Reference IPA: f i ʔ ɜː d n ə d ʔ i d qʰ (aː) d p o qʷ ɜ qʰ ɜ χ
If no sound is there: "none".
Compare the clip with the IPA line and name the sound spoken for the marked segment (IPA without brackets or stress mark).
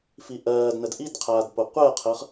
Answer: aː